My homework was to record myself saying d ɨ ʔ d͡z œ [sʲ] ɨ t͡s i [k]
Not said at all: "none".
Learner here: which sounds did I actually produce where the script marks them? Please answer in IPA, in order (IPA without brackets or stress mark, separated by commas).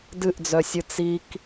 sʲ, k